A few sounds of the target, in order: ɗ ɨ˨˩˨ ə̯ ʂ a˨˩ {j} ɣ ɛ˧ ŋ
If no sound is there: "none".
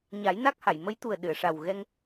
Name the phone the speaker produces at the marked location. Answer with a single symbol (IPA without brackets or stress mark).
w